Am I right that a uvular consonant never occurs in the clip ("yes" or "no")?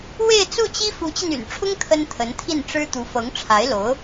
yes